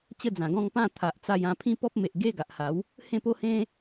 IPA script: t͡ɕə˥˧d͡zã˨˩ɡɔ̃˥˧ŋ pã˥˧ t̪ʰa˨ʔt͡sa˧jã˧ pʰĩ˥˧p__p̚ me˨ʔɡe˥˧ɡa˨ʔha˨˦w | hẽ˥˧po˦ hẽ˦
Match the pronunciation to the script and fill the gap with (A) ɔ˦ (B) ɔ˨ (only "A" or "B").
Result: A